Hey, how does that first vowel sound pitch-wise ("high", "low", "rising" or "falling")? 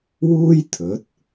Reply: high